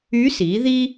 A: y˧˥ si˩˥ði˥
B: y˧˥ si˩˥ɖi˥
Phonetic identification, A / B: A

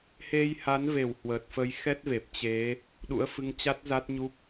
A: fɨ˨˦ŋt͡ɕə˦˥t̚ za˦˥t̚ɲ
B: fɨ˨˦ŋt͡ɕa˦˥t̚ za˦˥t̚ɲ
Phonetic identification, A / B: B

